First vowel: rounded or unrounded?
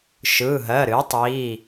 unrounded